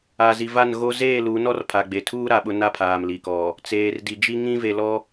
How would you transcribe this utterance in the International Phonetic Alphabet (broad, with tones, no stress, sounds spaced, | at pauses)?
a˨ z i˨ v a˦˨ n ɣ o˦ z eː˦˨ l u˨˦ n ɔ˦ r pʰ a˨ ɡ͡b e˨ tʰ uː˦ ɾ a˨ ɓ ʊ˦ n a˦ pʰ aː˨ m l i˨ k ɔ˨ | t͡s eː˨ r d i˨ d͡ʒ i˦ ŋ ĩ˦ v e˨ l ɔ˦